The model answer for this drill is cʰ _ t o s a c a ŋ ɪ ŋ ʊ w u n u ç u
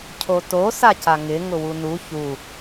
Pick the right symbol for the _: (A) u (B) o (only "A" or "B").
B